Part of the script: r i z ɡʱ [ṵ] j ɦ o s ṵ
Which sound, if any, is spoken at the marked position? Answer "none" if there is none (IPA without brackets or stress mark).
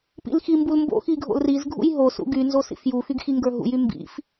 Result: ṵ